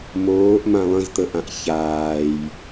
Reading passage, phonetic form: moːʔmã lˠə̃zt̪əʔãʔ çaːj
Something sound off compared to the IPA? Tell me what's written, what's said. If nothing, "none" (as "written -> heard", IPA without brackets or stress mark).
none